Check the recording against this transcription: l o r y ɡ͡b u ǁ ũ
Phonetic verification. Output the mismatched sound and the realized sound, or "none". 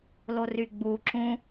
none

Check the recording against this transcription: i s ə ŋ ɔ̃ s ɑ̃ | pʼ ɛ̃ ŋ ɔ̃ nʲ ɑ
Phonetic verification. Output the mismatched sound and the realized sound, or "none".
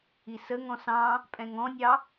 none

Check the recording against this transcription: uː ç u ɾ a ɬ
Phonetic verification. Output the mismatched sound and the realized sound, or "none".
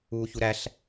a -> æ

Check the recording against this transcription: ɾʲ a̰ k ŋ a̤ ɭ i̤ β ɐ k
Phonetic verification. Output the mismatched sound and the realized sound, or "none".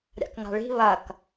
none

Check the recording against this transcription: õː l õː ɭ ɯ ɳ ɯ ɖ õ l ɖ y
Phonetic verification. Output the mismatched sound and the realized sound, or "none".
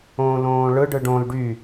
ɳ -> ɖ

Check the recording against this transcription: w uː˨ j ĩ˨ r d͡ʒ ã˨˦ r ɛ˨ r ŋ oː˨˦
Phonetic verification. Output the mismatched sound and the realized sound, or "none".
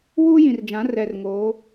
uː˨ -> uː˦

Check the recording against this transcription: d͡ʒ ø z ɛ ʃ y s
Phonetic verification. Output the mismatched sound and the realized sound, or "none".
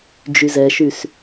ø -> y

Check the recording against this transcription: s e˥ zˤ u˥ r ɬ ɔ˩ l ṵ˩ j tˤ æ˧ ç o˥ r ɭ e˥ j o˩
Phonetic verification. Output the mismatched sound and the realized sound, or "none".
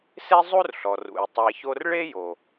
l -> r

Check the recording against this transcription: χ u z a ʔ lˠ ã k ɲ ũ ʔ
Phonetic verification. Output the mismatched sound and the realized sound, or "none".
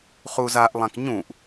none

